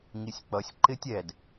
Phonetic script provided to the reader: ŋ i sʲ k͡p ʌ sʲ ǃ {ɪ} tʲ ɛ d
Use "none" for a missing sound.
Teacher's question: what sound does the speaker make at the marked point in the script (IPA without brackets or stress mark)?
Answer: ɪ